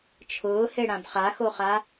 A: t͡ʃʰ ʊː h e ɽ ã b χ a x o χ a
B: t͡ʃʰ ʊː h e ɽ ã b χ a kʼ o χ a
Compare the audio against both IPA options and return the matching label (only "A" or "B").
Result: A